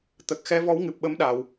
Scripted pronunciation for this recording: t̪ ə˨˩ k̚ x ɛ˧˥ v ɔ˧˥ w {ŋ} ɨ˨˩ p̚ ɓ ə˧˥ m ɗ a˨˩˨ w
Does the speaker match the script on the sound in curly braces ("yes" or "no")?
yes